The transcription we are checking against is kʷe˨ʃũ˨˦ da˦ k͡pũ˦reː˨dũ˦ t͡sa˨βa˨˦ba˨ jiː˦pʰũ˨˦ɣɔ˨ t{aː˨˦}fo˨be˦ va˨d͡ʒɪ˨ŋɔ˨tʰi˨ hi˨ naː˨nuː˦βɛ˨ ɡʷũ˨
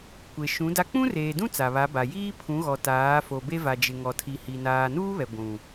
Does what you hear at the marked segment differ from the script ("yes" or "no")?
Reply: no